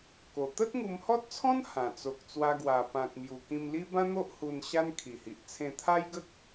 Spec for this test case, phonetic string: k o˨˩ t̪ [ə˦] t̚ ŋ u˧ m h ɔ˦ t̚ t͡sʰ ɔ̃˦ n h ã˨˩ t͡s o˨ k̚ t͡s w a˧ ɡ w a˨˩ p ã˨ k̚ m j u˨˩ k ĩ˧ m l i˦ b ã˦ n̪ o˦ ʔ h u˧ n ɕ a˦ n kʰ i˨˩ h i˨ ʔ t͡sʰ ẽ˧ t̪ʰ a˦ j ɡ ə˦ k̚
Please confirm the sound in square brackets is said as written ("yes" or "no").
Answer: yes